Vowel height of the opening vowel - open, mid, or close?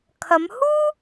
open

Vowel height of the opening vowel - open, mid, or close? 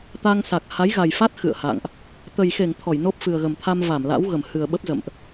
open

